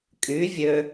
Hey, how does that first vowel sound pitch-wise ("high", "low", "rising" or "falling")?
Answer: rising